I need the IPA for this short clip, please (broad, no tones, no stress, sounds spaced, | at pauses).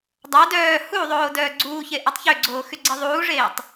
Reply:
dˤ a d œː h u ðˤ oː d œː ɡ͡ǀ uː ç e ʔ a tˤ ç ø ɡ͡ǀ oː x y ɡ͡ǀ e ðˤ uː ʐ eː tˤ